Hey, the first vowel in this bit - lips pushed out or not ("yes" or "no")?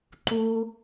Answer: yes